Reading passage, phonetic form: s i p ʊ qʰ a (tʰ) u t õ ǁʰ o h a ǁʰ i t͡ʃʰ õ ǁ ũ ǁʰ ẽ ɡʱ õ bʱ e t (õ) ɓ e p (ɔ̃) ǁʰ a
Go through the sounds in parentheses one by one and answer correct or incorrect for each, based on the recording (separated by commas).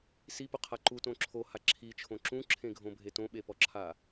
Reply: incorrect, correct, incorrect